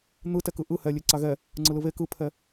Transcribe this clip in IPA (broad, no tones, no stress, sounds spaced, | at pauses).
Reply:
n̪ ɯ t ɛ k ɯ ʔ ɯ h ɛ lʲ e ǀ a ɣ ɛ | ŋ͡ǀ ɯ l ɯ β e k ɯ pʰ ɛ